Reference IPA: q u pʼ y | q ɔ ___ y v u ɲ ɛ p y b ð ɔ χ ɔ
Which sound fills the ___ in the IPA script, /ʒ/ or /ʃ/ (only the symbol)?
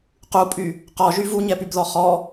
ʒ